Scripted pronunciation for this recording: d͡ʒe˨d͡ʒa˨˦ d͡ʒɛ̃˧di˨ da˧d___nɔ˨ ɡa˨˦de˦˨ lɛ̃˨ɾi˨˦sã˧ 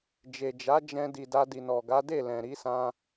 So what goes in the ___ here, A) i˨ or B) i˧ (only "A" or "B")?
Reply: A